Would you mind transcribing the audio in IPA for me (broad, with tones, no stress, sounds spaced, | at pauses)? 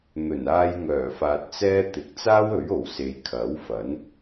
n̪ ɵ˨˩ n aː˧ j ŋ œː˨˩ f aː˨ t̚ t͡s ɛː˥ t̪ ɪ˨˥ k̚ t͡s aː˥ w ɵ˨˥ ɥ o˨˩ w s e˨ j kʰ ɐ˨˥ w f ɐ˨˥ n